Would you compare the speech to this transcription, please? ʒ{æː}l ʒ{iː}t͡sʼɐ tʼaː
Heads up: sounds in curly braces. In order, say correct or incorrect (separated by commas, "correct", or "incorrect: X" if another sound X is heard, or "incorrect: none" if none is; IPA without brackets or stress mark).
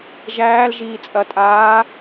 correct, correct